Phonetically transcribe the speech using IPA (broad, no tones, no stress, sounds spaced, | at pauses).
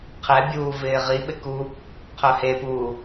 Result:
qʰ ɛ bʲ uː v ɪː ʁ i ɓ ɪ k u | qʰ œ h e p uː